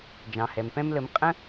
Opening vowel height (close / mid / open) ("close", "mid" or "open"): open